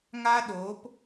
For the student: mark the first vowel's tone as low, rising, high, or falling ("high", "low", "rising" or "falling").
high